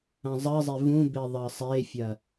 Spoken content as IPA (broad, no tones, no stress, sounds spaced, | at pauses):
ɐ̃ zˤ ɜ zˤ e v ũ b e ðˤ ɜ sˤ e fʲ ɐ